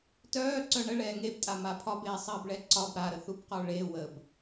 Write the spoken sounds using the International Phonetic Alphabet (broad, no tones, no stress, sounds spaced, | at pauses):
t œː ǀ œ ɳ ə ɭ ɛː ŋ e b tʼ a m a pʰ ɒ b eː sˤ ɘː b ɭ ɛ ǀ ɒ b ɾ a ɾ ə θ u b q ɔ ɭ e w ə b